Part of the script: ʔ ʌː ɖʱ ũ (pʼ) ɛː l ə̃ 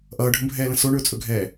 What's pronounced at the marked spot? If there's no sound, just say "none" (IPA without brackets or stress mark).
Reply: bʱ